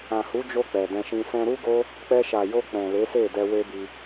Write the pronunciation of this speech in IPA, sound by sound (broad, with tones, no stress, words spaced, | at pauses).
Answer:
ã˨hu˨˦d͡ʒo˧ k͡pɛ˨dɛ̃˧ʃĩ˧ sɛ̃˧ɾu˦ɡo˦ | k͡pɛ˧ʃa˨jo˧ k͡pɛ̃˨le˨˦se˦˨ dɛ˧we˦bi˧